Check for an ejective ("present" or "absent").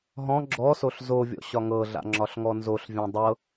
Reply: absent